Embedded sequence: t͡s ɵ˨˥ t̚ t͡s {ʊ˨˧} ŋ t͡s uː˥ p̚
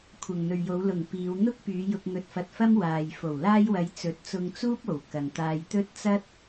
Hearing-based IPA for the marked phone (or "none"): ʊ˧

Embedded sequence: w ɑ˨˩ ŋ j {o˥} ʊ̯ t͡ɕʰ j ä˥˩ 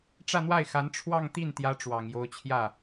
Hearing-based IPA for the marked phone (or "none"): o˧˥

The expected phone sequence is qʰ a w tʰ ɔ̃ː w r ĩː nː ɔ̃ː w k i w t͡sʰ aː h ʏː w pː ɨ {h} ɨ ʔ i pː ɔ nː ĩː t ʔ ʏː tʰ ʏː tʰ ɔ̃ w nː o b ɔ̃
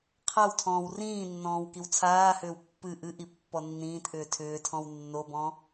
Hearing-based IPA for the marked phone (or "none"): ʔ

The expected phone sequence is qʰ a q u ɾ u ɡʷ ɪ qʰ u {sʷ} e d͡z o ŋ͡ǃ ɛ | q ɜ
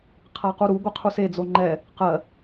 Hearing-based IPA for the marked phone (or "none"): s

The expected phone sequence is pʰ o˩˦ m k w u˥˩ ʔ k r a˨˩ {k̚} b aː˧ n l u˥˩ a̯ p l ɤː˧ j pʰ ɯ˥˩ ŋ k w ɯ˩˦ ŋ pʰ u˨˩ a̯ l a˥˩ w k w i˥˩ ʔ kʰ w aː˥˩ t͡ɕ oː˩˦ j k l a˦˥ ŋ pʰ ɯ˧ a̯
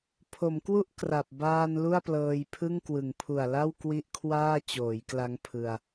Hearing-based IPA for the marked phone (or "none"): p̚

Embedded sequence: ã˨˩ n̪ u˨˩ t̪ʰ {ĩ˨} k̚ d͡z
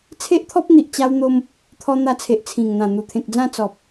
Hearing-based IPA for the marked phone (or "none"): ẽ˨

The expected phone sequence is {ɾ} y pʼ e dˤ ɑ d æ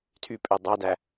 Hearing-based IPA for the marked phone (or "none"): tʰ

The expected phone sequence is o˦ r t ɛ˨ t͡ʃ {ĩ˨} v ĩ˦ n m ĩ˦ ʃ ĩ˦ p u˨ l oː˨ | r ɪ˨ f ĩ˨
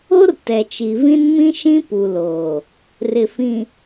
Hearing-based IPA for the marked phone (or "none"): i˨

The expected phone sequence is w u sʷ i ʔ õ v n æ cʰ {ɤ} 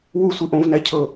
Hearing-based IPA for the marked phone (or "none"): ɤ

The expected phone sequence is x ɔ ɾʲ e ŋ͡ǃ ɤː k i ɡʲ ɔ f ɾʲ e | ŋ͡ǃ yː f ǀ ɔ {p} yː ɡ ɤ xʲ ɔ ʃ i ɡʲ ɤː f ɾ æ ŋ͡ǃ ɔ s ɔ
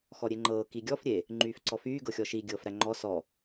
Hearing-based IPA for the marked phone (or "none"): f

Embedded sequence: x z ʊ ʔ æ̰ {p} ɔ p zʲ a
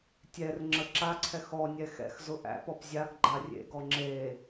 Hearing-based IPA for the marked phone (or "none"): p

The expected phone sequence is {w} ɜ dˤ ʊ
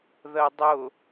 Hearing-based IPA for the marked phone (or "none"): ð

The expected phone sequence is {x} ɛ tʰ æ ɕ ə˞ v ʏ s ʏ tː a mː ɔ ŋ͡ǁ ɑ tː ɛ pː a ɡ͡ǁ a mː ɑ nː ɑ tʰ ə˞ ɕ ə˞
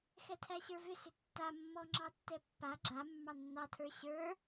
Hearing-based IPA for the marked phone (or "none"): x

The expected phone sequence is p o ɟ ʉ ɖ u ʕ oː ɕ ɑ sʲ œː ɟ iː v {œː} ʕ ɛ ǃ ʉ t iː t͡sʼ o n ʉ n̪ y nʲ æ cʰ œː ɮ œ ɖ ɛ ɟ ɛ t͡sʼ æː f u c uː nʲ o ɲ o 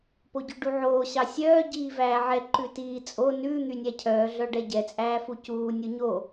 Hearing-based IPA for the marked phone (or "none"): æː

